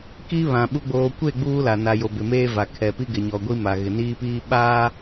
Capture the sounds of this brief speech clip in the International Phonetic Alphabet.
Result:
k i˦ β ã˨ ɓ u˨ ɡ͡b oː˨ kʷ e˦˨ ɡ͡b uː˦ l a˨ n a˨ j o˨ b ɪ˨ m eː˦ v a˨ kʰ ɛ˨ p i˦ ɡ ɪ˨ ɲ ɔ˨ ɡʷ i˦ m a˨ ɣ ɪ˨ n iː˦ p iː˦ ɓ aː˦

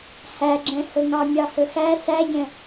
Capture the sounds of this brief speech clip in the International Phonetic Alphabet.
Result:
h æ ɡ͡ǁ ɛ̃ h ɵ ŋ ɑ mʲ ɑ h ɵ x æ s æ ɟ ɛ̃

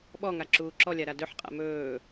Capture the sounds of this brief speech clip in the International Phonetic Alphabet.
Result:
ɓ ɔ ŋ a ǁ uː ǁ ɔ lʲ a ɾ a d ɵ ħ qʼ a̰ m ɵː

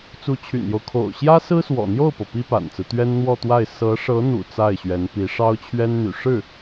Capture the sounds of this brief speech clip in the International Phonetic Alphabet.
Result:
t͡s u˧˥ t͡ɕʰ y̰˨˩ n j o˦ ʊ̯ kʰ o̰˨˩ ʊ̯ ɕ j ä˥ s ɹ̩˥ s w ɔ̰˨˩ n̪ j o˥˩ ʊ̯ p ɤ˩ p i˥ p a̰˨˩ n t͡s ɹ̩˦ t̪ ɥ ɛ˥ n n̪ w ɔ˥˧ t̪ w a˥˩ ɪ̯ s ɤ˧˥ ʂ ɤ˧˥ n̪ ṵ˨˩ t͡s a˥˩ ɪ̯ ɕ ɥ ɛ˧˥ n p i˧˥ ʂ ɑ˥ ʊ̯ t͡ɕʰ ɥ ɛ˥ n n̪ y̰˨˩ ʂ ɻ̩˥˩

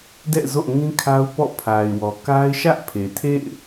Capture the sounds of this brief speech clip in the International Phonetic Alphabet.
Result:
d ɛ̰˦˨ z o̰˦˨ ŋ ĩ˦ kʰ a˦ ʊ̯ p ɔ̰˦˨ pʰ a˨ ɪ̯ w ɔ˨ k a˦ ɪ̯ ʃ ä˦ ʔ pʰ e˨ tʰ ḛ˦˨ ɪ̯

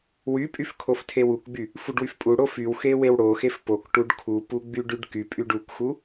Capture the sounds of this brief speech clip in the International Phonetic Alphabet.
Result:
w y pʼ y f kʰ o f tʰ e w u k ɡ͡b y | f u ɖ w y f pʼ u ɽ o f y w x e w e w ɽ o x e f p o k ʈ u ɖ kʰ u p u ɡ͡b y ɖ y ɖ k y pʼ y ɖ u k x u

